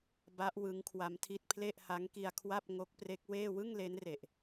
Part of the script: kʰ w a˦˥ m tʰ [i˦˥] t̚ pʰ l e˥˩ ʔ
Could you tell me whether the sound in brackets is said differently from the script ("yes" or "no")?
no